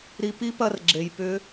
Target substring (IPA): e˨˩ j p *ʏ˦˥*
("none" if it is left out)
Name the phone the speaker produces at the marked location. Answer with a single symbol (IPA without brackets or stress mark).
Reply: ʏ˦˥